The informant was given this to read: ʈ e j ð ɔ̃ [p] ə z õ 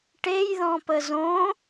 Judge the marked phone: correct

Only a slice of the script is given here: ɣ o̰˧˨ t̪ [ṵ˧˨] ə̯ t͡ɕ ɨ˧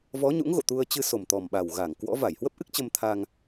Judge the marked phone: incorrect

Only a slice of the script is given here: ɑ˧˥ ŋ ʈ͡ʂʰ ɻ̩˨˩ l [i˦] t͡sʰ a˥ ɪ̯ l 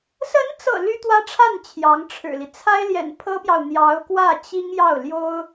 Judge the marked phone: correct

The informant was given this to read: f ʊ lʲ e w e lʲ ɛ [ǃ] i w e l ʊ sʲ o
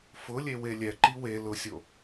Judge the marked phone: correct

